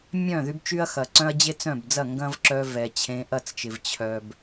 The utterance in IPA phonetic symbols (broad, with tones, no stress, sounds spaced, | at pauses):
mʲ œ̃˦˨ ð y˦ b t͡ʃ y˦ ɐ̯ x ɐ˨ ǀ œ̃˦ ɐ̯ d͡ʑ e˦ t͡s œ̃˦˨ b d͡z ɐ˦˨ ŋ ɡ ɐ̃˦ v ǁ œ˧ v ɛ˨ t͡ɕʰ ẽ˧ ʔ ɐ˦˨ t͡s t͡ʃ ɪ˨ v t͡ɕʰ œ˨ b